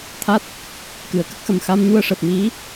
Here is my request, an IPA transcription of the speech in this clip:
t̪ʰ a˦˥ t̚ | k ɨ˨˩˨ ə̯ k ə˦˥ k̚ x ə˨˩ m x a˧ m ɲ u˧ ə̯ ʂ əː˨˩ p̚ m i˧˥

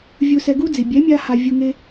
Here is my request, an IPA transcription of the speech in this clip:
vʲ u˧ s ɛ˧ ɡ u˦ d͡z i˨ bʲ ɛ˨˦ mʲ a˧ h a˧ vʲ u˧ ŋ e˦

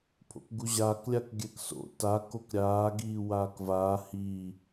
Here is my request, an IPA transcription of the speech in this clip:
pʰ o̰ k ɡ u ʑ aː k lʲ a k ɡʲ ɛ k s o̰ t a k o k ɾʲ aː ɡ iː w aː k v aː h i

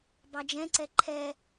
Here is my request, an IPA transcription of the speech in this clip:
b ɑ d͡ʒ ɛ̃ ǀ ɛ ǃʰ ɛ

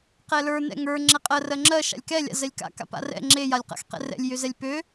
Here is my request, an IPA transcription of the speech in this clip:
q ɛ l ə˞ n ɛ̰ ŋ ə˞ ŋ͡ǁ ɛ qʼ ɜ r ɜ ŋ͡ǁ ɜ ʃ a̰ lʲ k ɛ lʲ a̰ z ɛ lʲ k a̰ k a̰ p a̰ r ɛ̰ ŋ͡ǁ e j a lʲ q a̰ x q ɛ̰ r ɛ̰ lʲ j ø z ɛ lʲ p ø

